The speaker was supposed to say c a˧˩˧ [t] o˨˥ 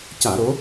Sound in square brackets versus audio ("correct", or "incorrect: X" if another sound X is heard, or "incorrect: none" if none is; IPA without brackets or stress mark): incorrect: ɾ